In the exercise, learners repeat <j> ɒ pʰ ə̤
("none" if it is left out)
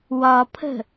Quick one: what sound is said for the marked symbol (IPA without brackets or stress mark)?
w